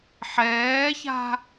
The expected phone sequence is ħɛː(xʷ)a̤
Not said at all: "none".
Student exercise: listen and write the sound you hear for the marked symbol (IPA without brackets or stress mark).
ç